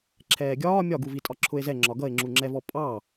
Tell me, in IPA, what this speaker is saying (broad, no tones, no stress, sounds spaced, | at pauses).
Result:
ǁʰ ɛː ɡʲ ɒː mʲ ɒ ɡ u v i tʼ ɒ ǁʰ ʊ e̯ z ɛ ŋ͡ǁ ɒ ɡ ʌ e̯ ŋ͡ǁ u ŋ͡ǁ ɛ v ɔ pʼ ɑ